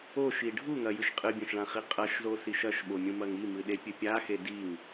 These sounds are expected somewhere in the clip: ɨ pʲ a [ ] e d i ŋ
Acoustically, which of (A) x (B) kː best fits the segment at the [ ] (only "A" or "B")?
A